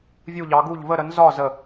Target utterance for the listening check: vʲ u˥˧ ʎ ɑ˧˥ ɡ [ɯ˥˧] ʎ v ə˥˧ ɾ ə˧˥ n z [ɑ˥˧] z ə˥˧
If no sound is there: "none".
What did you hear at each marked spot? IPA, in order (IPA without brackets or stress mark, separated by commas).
u˥˧, ɒ˥˧